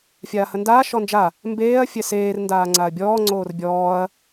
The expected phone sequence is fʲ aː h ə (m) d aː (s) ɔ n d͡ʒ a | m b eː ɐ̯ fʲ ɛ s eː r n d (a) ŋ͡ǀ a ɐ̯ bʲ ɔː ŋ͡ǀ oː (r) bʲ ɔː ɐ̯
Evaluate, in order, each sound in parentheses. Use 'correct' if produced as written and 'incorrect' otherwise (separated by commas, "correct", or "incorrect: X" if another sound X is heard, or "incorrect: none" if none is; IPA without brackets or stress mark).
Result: incorrect: n, incorrect: ʃ, incorrect: aː, correct